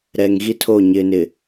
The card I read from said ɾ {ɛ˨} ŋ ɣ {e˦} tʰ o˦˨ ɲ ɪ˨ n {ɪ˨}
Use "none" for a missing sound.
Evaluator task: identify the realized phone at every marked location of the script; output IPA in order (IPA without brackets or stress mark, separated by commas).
ɛ˨, i˦, ɪ˨